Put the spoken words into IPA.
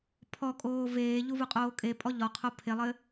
pʰ ɔ kʼ oː v eː ʎ u v u qʼ oː kʼ e pʼ ɔ ʎ ɔ qʰ o pʰ e lˠ ɘ

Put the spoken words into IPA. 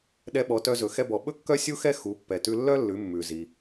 ɗ ɛ˧ ɓ ɔ˩˧ t œ˧ z ɵ˩ x ɛ˧ b ɔ˩ ɓ ɵ˥ kː œ˥ sʲ u˥ x ɛ˥ x u˩˧ pː ɛ˩ t ʉ˧ lː œ˥ lː ʉ˩˧ mː ʉ˩ z i˩

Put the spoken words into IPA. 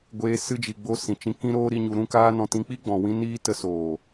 ɡʷ eː˧ s ɨ˧ d͡ʒ i˨ ɡ͡b o˧ s ĩ˨ t͡ʃ ĩ˧ k ĩ˦ ɾ oː˦ ɾ i˦ ɲ u˧ ɾ ũ˦ k aː˦ n ɔ̃˧ t ĩ˧ k͡p i˦ ɡ͡b ɔ̃˨ w ĩ˧ n iː˧ t ə˧ s oː˨

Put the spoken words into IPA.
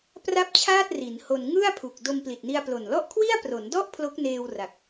p r a˥˩ p̚ t͡ɕʰ aː˥˩ t̚ r i˩˦ n h o˧ n ŋ ɯ˥˩ a̯ pʰ u˨˩ k̚ d o˧ m p l i˨˩ t̚ n i˧ a̯ p l o˨˩ n l ɔ˥˩ ʔ kʰ w i˥˩ a̯ p r o˩˦ n d ɔ˥˩ ʔ pʰ l o˦˥ k̚ n eː˧ w r a˨˩ k̚

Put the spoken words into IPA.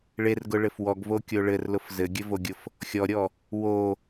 ɭ e r ɡ ʊ ɭ ɘ f w ɔ ɡ v o kʲ o ɭ ɘ r l ʊ f z ɘ ɡʲ ɘ v o ɡʲ ʊ f | xʲ ɔ ɾʲ ɔ | w o

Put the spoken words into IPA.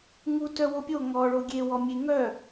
ŋ u t œ w o pʲ o ŋ ɔ ɭ o ɡʲ e w ɔ mʲ e ŋ œ

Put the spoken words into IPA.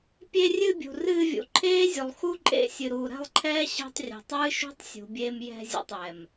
pʲ e˧ rʲ ɨ˧ bʲ ṳ˨ r ɨː˧ vʲ ṵ˨ ǃʰ eː˦ zʲ u˨ lˠ x u˦ ǃʼ ḛ˧ sʲ ɨ˨ ɾ uː˨ ɾ ɛ̤˦˨ lˠ ǃʰ ɛː˦ ɕ ɛ̤˧ tˤ rʲ ɛ̤˨ tˤ ɨː˦ ʃ ṳ˦ tˤ sʲ ṳ˨ bʲ eː˧ m j ɛ̤˧ zʲ ɛ̰˨ tˤ j ɛ˨ m

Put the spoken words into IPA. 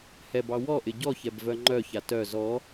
h ɛ b ɑ w ɔ ʔ ɪ ɟ ɔ ç ɛ b v œ ŋ͡ǃ œ ç a t œ z ɔ

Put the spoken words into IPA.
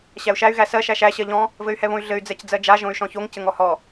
ɕ æ u̯ ʃ æ y̯ ɣ æ s ɜ ʃ æ ʃ æ ɕ ɜ ʎ ɔ̃ | v ɘ y̯ h ɛ β õ y̯ ɮ ɘ y̯ d͡z ɛ c d͡z ɜ d͡ʒ a ʒ õ y̯ ʃ ɔ̃ ç o ŋ c ɘ ŋ ɔ h ɔ

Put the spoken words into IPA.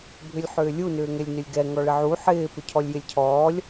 bʱ ʏ lʲ ħ ʏː lʲ u n ʏː ŋ ɛ lʲ n ʏ lʲ ɡ ɛ ŋ ɔ ɭ ɪ ʕ u ħ ɪː p ʏ cʰ ɔ lʲ j ɪ lʲ cʰ ɔː lʲ

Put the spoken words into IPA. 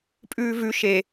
pʼ ʉː v ʉ ʃ e

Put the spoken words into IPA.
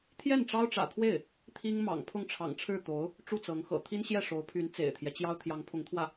t̪ʰ j ɛ˥˩ n ʈ͡ʂ ɑ˥ ʊ̯ ʈ͡ʂ ä̰˨˩ t̪ʰ w e˥˩ ɪ̯ | t̪ʰ i˥ ŋ m ɑ̰˨˩ ŋ pʰ ʊ˥˩ ŋ ʈ͡ʂʰ ɑ̰˨˩ ŋ ʈ͡ʂʰ ɻ̩˥˩ t̪ o˧˥ ʊ̯ | ʈ͡ʂ u˥˩ t͡s ɤ˧˥ ŋ x ɤ̰˨˩ t̪ʰ i˥ n ɕ j ɛ˥˩ ʂ o˧˥ ʊ̯ pʰ y˧˥ n t͡s ḛ˨˩ ɪ̯ t̪ʰ j ɛ˦ t͡ɕ j ɑ˥ ʊ̯ t̪ʰ j ɑ˧˥ ŋ pʰ ʊ˧˥ ŋ t̪ʰ w ä˥˩

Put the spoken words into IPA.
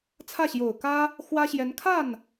t͡sʰ ä˥˩ ɕ j o˨˩ ʊ̯ k ä˥ | x w ä˥ ɕ j ɛ˧˥ n kʰ a˥˩ n

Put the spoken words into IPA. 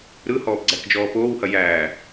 ɾ ɯ h ɔː p ɡ͡ǀ æ k d͡ʒ ɔː p oː w h ɐ j æː

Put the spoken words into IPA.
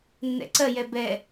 nː ɛ̰ ǀ ɜ j ɛ b ɛ

